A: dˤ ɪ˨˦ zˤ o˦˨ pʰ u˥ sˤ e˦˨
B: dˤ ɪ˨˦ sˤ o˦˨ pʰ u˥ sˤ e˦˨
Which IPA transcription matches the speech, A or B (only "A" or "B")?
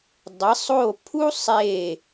B